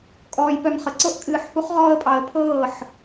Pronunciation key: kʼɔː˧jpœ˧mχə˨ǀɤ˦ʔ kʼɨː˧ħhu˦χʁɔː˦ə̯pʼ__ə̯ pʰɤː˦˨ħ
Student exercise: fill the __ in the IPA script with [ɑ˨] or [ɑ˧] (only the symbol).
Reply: ɑ˧